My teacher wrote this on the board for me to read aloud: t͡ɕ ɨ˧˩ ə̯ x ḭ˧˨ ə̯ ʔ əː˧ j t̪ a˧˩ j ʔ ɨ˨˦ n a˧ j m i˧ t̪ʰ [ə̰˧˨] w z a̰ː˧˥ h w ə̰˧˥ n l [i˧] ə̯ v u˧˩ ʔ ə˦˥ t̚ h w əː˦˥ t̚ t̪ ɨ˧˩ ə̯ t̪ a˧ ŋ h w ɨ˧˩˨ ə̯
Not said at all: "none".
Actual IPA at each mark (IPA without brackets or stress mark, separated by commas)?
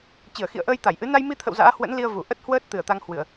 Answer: ə̰˧˨, i˧